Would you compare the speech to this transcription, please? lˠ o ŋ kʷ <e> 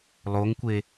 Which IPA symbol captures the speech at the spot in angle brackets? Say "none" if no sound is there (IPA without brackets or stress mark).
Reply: e